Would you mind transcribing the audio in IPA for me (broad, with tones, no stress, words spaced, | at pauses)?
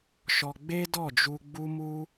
ʃɔ˧ ɡ͡be˦dɔ˦˨d͡ʒu˧ ɡ͡bu˦mu˦